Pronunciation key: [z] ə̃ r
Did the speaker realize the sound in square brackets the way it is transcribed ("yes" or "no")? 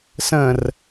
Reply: no